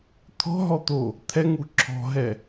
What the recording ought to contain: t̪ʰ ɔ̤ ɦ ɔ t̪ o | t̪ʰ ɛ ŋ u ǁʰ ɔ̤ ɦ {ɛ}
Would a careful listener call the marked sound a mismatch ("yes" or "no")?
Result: no